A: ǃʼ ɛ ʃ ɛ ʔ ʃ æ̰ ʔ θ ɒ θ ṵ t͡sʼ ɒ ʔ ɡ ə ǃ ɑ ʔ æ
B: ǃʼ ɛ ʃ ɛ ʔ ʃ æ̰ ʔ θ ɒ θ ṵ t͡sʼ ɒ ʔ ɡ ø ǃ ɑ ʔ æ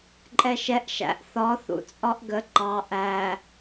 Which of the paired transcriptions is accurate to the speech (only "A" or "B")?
A